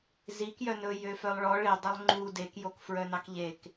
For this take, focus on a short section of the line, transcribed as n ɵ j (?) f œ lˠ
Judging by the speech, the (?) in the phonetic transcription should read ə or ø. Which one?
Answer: ø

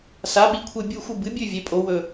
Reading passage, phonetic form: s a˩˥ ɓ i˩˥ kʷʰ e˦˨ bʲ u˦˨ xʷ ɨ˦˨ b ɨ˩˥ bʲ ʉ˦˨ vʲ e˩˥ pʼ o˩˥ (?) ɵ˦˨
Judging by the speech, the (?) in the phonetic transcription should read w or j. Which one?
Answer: w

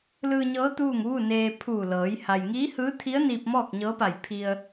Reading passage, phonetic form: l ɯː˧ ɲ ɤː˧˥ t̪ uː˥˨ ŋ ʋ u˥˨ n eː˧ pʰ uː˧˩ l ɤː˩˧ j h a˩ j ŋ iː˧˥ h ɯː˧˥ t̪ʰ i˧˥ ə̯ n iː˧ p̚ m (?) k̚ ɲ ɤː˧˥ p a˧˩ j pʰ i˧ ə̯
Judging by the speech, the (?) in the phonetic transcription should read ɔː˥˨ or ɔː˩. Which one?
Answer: ɔː˥˨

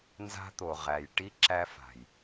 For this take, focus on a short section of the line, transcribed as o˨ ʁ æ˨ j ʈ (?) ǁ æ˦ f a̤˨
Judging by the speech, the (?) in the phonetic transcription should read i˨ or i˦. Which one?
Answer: i˦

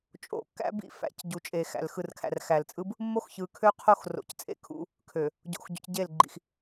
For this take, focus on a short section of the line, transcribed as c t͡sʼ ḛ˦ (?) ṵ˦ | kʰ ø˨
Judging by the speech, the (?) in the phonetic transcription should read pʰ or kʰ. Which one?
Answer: kʰ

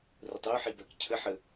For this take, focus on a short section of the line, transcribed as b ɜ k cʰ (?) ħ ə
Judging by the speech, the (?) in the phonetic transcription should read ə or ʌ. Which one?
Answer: ə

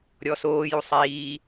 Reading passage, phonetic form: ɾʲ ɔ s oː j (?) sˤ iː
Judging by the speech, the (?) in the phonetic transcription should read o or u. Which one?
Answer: u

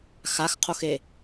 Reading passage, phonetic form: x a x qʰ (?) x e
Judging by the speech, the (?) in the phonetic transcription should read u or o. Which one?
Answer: o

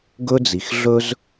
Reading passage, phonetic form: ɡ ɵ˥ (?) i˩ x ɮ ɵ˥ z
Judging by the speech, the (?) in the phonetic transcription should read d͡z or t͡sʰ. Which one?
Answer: d͡z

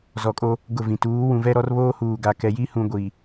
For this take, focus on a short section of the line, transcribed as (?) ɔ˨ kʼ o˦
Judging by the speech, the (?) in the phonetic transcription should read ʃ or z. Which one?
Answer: z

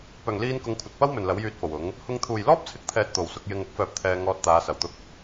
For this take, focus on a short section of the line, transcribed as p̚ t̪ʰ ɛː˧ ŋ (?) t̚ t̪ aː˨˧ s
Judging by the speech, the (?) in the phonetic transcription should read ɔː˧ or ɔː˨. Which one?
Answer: ɔː˧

